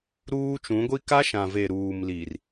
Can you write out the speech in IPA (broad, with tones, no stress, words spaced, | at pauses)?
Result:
ɾuː˦t͡ʃũ˨˦ɡʷi˦ ka˦ʃã˨ve˨ ɾuː˨mli˨r